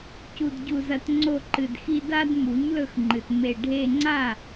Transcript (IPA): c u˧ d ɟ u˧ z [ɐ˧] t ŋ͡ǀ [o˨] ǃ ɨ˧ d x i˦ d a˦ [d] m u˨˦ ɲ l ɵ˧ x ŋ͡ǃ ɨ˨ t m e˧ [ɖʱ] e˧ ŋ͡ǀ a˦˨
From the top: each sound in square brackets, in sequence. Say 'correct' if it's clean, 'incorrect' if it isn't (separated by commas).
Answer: correct, incorrect, correct, correct